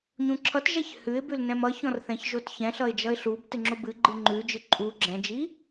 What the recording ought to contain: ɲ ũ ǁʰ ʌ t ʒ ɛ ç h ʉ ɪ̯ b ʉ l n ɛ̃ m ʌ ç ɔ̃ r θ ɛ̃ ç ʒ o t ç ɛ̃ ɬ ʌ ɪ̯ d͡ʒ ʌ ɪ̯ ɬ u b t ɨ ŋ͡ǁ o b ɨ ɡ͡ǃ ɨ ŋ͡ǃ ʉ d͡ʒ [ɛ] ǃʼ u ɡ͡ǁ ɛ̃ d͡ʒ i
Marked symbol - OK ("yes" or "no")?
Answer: no